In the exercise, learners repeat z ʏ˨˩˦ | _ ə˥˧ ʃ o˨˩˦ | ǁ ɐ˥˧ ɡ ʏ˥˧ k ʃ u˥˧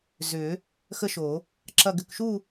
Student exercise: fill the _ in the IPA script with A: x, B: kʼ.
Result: A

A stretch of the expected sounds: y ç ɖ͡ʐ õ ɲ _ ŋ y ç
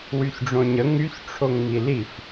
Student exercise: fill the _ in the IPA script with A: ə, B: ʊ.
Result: A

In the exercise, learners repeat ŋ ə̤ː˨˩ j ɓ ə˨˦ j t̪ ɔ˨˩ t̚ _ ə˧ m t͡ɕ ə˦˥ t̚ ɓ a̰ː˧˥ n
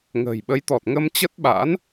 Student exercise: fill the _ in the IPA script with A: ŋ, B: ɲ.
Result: A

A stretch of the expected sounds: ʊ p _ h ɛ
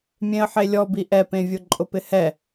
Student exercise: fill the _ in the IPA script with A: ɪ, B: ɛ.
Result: A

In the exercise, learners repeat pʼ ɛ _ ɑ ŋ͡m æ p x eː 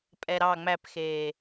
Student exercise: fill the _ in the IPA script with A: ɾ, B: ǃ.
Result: A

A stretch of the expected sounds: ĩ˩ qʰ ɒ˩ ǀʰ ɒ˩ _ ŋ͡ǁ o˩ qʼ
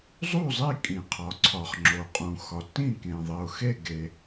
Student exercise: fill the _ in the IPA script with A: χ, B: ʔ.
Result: A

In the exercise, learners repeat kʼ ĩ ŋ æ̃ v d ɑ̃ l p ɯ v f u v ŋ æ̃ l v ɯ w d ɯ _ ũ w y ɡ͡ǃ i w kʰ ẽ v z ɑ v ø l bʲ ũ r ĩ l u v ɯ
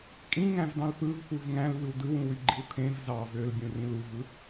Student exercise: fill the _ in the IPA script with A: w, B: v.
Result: A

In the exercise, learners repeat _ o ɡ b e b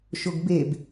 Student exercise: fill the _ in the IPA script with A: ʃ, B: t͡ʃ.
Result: A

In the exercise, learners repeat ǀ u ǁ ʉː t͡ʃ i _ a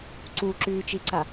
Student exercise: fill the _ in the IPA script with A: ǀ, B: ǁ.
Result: A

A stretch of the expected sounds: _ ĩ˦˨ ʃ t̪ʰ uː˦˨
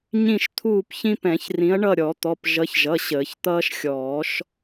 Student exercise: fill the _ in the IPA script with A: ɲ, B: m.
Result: A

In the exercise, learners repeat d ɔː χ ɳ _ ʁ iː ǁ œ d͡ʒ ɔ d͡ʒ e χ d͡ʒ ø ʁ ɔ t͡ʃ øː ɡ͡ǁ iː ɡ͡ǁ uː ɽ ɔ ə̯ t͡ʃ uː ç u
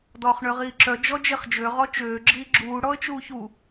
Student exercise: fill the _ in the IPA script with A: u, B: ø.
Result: B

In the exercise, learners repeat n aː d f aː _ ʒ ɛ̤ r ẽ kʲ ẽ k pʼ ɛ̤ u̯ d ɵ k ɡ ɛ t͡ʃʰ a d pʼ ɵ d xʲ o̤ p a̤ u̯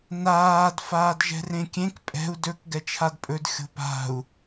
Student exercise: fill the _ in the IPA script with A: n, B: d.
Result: B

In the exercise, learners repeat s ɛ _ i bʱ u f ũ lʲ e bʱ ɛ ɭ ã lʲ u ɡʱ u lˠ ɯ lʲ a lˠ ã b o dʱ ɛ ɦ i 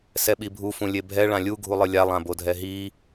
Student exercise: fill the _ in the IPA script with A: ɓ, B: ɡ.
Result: A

